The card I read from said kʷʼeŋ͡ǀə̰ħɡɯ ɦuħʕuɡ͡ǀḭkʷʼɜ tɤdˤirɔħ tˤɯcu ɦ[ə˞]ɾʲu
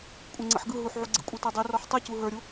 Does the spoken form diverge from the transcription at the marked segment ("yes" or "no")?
no